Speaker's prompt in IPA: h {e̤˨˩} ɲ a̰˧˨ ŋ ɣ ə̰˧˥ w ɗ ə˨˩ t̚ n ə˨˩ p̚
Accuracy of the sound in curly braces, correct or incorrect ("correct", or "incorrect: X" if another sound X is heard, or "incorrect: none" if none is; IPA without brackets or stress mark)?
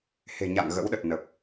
correct